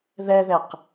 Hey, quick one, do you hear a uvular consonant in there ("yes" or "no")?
yes